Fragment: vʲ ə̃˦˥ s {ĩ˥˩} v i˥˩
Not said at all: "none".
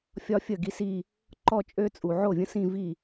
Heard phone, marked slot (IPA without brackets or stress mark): ĩ˥˧